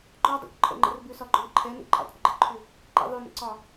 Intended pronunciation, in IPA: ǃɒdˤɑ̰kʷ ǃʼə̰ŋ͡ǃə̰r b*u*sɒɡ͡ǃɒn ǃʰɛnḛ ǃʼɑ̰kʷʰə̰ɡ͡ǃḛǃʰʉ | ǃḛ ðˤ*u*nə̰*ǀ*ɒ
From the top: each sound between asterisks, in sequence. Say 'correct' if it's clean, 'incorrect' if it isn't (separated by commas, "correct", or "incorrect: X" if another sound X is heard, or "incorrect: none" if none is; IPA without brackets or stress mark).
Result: incorrect: ʉ, incorrect: ʉ, correct